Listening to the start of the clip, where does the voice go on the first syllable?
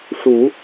low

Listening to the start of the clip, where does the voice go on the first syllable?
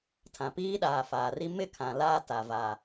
low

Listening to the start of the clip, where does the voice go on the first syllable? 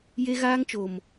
high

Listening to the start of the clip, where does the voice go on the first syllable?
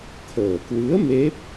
low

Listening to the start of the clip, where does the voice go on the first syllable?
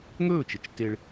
falling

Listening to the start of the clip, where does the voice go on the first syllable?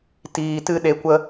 low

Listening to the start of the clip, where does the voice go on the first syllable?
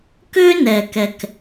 high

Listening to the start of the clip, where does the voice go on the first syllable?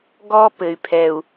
high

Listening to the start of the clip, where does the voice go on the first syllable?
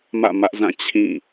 falling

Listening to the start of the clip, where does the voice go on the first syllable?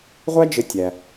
high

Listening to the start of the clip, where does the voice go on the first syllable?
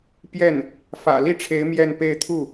falling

